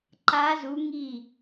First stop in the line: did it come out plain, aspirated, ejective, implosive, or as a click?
click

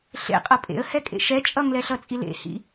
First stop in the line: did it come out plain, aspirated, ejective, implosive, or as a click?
ejective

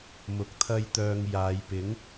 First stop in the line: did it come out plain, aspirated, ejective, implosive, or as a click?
plain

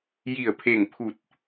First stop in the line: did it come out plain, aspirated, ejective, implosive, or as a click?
aspirated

